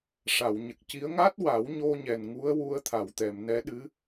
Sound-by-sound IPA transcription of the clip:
ʂ a˨˩˨ w ɲ ə˨˩ k̚ c i˧˥ ə̯ ŋ a˦˥ t̚ w a˨˩˦ w ɲ o˧ ɲ ɛ˨˩ n ŋ u˧˥ ə̯ w u˧ ə̯ t̪ʰ a˨˩˨ w t̪ ɛ˨˩˨ m n ɛ˧˥ ɗ ɨ˧˥

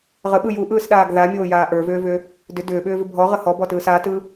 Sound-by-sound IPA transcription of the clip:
ʁ ə ɓ ɯ j u ʔ ɯː s ɗ aː ɡ ð a mʲ oː j aː ʔ ə˞ v ʏː v ʏ | d ʏ d ʏː ɓ ʏː v ʏ bʱ ɔ ʁ ə h ɔ b ɔ t ɯː s a t ɯ

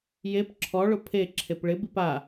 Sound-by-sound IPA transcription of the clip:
j e p ǁʰ ɔ ɭ ʊ pʰ e ǁʰ e p ɭ ɪ b i p a

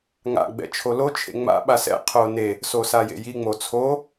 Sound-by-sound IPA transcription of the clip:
ŋ a̰ ɡ͡b ɛ̰ t͡ʃʰ o l o t͡ʃʰ ḛ ŋ͡m a̰ ɓ a s ɛ̰ qʰ o n e | s o s a j ḛ j i ŋ͡m o t͡sʰ o

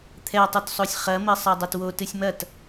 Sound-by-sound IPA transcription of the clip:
t̪ʰ ɛ tˤ u t sˤ o sʲ χ ɐ m ɘ sˤ a dˤ ɐ t w o t ɨ sʲ m ɐ t

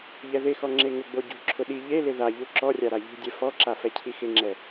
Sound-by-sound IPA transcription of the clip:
ʎ ɛ ð ɪ x ɔ ŋ͡ǁ e ŋ ʊ ɡ͡b o ɟ ṳ ǁʰ ʊ ɗ i ʎ e l ɪ ð a ʎ u ǁ ɔ rʲ a ɾ a ʎ ṳ dʲ ɛ f ɔ ǁ a f ɛ cʰ i x ɪ ŋ͡ǁ ɛ

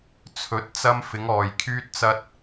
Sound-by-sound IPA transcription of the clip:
t͡sʰ ɵ˨˥ t̚ t͡s ɐ˧ m f ɪ˨˧ ŋ ɔː˨ j kʰ yː˧ t̚ t͡s ɐ˧ t̚

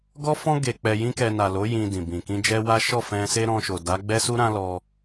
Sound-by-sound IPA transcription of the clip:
ɡ ɔ˦ f ɔ̃˦ ɡ e˧ k͡p ɛ˧ j ĩ˦ k ɛ˧ n a˨ l o˨˦ j ĩ˧ d ĩ˨ b ĩ˨ k ĩ˧ d͡ʒ ɛ˦ w a˦ ʃ ɔ˦˨ f ɛ̃˧ s e˦ ɾ ɔ̃˧ ʃ o˨ d a˨˦ ɡ͡b ɛ˦ s u˦ ɾ ã˦ l ɔ˧

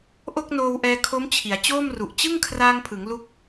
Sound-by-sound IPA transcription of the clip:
ʔ o˥˩ k̚ n oː˧ w ʔ ɛː˧ kʰ o˦˥ m t͡ɕʰ i˩˦ a̯ t͡ɕ oː˥˩ m r u˨˩ ʔ t͡ɕ ɯ˥˩ ŋ kʰ r aː˧ ŋ pʰ ɯ˩˦ ŋ l u˦˥ k̚

